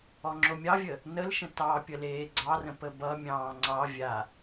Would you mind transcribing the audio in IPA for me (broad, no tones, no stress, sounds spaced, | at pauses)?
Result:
ɔ ŋ͡ǁ o mʲ ɑ vʲ ə | n ə l ʃ ə̃ t ɑ pʲ ə l eː ɡ͡ǀ ɑ r ə̃ p ə b ʌ mʲ ɑ̃ː ŋ͡ǀ ɑ vʲ a